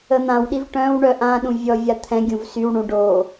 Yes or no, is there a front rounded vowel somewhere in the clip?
yes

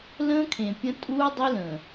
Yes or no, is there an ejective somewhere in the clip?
yes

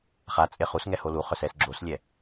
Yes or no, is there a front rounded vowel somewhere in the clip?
yes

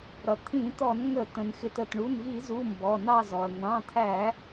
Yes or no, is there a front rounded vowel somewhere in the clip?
no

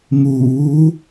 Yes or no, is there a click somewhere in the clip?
no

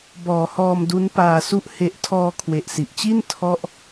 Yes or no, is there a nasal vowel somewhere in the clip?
no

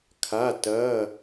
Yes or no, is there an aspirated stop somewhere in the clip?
yes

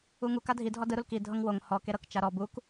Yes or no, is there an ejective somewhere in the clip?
no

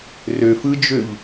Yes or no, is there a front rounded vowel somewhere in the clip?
yes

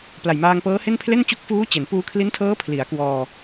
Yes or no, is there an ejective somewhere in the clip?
no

